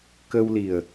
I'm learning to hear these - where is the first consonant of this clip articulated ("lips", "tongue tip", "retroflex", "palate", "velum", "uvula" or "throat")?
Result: velum